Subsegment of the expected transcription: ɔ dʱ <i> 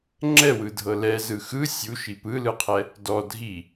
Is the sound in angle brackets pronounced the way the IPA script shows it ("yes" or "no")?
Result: yes